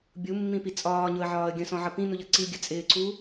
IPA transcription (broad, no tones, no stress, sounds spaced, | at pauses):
bʲ u mː ĩ p i t͡sʼ ɒː ɲ ʊ ə̯ ʕ ɒː ə̯ ɡʲ ə̃ s ɔ̃ ʕ ʌ p ĩ n u ʎ ʌ ǀ i ɡʲ ə t͡sʼ ɪː ǀ uː